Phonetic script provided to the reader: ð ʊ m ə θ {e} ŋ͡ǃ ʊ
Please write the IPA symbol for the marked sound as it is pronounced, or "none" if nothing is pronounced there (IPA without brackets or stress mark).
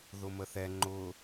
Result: ɛ